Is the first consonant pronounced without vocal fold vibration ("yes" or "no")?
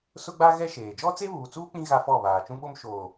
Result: yes